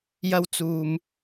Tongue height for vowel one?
low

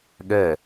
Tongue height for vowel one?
mid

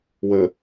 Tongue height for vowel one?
mid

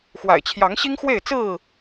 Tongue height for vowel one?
low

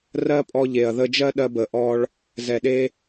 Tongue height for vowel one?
mid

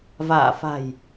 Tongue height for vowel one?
low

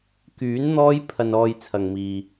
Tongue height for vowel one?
high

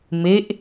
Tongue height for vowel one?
mid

